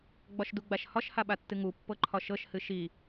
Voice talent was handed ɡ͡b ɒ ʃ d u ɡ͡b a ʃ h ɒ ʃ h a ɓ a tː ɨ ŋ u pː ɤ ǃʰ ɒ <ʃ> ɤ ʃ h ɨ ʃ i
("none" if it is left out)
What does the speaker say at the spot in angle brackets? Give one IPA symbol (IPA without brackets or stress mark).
ʃ